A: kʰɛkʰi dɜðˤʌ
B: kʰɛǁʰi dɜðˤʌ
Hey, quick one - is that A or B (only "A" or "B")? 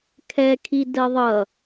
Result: A